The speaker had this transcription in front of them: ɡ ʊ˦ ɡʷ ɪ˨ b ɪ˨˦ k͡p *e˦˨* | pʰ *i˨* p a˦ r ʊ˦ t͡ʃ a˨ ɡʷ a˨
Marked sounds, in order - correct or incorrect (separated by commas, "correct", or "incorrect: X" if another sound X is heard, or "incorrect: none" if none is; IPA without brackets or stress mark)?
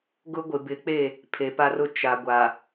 correct, incorrect: e˨